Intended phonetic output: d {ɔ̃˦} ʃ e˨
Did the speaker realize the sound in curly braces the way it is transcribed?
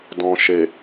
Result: no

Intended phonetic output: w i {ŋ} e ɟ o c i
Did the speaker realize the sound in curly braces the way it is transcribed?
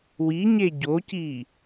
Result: no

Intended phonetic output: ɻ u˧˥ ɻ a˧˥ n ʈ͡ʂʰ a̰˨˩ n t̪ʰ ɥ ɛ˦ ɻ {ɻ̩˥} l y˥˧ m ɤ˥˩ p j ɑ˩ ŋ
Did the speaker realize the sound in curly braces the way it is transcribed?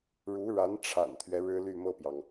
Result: yes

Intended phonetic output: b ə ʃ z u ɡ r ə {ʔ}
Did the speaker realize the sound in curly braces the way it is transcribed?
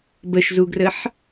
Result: no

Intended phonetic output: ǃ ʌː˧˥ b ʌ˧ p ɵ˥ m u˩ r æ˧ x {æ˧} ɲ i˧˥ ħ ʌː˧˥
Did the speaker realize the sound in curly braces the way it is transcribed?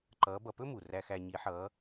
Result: yes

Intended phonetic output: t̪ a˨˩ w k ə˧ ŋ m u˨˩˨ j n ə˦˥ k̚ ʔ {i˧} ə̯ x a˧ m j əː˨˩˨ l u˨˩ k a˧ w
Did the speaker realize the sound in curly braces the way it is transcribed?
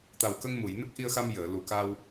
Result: yes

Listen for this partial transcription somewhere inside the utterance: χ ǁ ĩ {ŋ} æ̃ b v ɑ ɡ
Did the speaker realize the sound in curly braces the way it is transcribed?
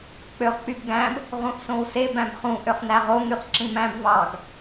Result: no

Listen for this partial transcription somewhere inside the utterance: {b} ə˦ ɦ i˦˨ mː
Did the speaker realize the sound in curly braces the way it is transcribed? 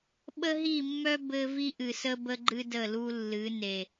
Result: no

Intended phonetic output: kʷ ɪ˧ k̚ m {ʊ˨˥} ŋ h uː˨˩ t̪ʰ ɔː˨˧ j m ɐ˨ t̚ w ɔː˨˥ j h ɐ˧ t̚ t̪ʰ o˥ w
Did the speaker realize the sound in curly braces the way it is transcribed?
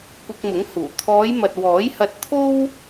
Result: yes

